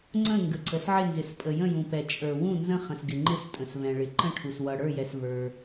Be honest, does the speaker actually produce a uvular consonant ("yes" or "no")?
yes